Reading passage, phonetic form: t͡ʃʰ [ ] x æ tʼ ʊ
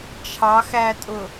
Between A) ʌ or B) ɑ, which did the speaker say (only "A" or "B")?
B